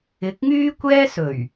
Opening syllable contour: rising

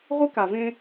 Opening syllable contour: high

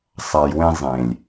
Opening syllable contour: low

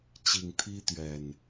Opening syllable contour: low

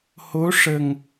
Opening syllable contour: rising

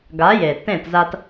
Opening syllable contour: rising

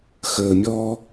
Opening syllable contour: low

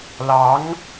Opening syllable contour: rising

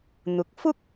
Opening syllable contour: low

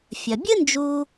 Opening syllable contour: low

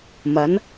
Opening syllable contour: rising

